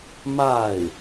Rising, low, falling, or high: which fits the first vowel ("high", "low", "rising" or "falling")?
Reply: falling